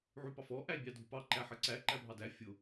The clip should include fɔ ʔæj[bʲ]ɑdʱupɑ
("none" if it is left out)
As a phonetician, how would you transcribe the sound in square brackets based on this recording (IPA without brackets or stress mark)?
bʲ